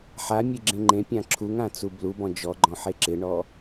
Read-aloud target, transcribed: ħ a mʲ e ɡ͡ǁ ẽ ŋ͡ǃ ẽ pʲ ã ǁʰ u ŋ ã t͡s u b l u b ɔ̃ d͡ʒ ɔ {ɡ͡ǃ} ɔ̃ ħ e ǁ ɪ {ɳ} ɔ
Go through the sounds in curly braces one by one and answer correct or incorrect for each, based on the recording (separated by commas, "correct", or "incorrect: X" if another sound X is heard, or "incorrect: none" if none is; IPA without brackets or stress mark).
correct, correct